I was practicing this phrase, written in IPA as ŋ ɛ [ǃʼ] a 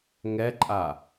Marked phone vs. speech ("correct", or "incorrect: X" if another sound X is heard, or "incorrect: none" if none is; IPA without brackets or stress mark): correct